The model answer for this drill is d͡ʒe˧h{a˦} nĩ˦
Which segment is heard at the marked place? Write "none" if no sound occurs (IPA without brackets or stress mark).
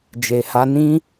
a˦